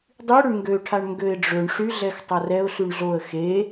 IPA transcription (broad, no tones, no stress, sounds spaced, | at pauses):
dˤ y ɽ ʏ ɳ ŋ ɡ ø ʈʰ a ɳ ŋ ɡ ø ɪ̯ ɖ͡ʐ ø ɳ ʂ y ɮ ɛ x tˤ ɐ r ɛ ʊ̯ ɬ y ɳ ɮ o ə̯ x e